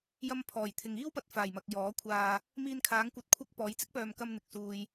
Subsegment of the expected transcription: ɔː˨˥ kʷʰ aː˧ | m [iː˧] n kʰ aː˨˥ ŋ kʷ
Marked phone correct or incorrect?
correct